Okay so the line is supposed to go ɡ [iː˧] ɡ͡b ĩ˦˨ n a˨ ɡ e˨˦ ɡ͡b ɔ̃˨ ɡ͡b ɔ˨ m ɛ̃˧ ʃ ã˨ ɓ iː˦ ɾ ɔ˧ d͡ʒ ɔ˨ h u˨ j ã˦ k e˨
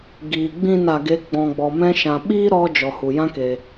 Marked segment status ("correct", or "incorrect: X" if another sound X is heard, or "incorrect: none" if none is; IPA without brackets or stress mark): incorrect: iː˨